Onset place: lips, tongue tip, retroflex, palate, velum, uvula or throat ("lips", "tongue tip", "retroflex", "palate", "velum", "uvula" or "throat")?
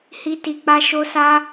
throat